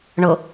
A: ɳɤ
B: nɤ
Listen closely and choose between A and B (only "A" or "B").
A